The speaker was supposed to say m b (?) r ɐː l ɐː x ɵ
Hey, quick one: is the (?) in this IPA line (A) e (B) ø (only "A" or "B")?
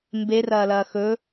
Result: A